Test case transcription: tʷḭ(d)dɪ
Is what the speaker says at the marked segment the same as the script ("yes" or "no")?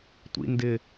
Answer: no